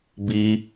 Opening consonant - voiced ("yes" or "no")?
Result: yes